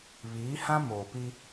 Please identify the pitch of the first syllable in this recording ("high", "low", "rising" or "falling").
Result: rising